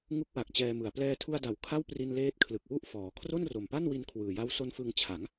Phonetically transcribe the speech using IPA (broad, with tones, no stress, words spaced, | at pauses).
ŋu˦˥k̚wa˨˩k̚ t͡ɕɛː˧mɯ˨˩a̯ plɛː˧tʰu˧a̯da˩˦w kʰa˥˩wpri˧nleː˦˥t̚ kʰlɯ˨˩k̚wu˥˩ʔfɔː˩˦ kʰro˥˩nro˨˩mpa˥˩nwi˧n kʰwɯː˨˩ja˦˥wso˦˥nfɯ˧ŋ t͡ɕʰa˩˦ŋ